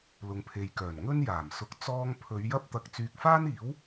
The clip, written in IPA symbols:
l ʊ˨ ŋ pʰ e˨ j k œː˨˩ n ŋ ɵ˥ n j aː˨˩ m s ʊ˧ k̚ t͡s ɔː˧ ŋ pʰ ɵ˨˧ ɥ j ɐ˥ p̚ t̪ ɐ˧ k̚ t͡s yː˧ k̚ f aː˥ n iː˨˥ w

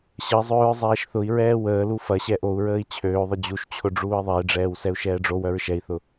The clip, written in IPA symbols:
ɕ ə i̯ zˤ øː ɹ zˤ ɛː ʃ θ ʊ i̯ ɹ ɛː w əː l u f ɐ ɕ ɛ ʔ o u̯ ɹ əː i̯ t͡ɕʰ øː ðˤ ə d͡ʑ u ʃ t͡ɕʰ ʊ ɖ͡ʐ uː i̯ ðˤ ɛ i̯ ɖ͡ʐ ɛː w s ɛ u̯ ʃ ɛː ɖ͡ʐ o w œ ɹ ʃ ɛ i̯ θ ʊ

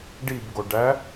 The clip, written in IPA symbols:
ɖ i b ɡ o ɖ æ

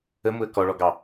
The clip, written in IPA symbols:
ə m ʊ ə̯ k ɔ ɭ ɔ ɡ ɑ

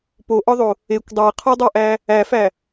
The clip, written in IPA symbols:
p o ʔ ɒ ðˤ o | e kʷ dˤ æ qʰ ɒ dˤ u ʔ æ | æ f æ

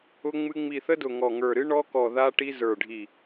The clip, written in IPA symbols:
ʊ˦˥ ŋ͡m ɨ˦˥ ŋ͡m i˧˩ θ ə˦˥ d ʊ˧˩ ŋ ɔ˧˩ ŋ ə˞˧˩ ɾ ɨ˦˥ ɳ ɔ˦˥ k ɔ˧˩ ð a˦˥ ʈ i˦˥ z ə˞˧˩ ɖʱ i˧˩

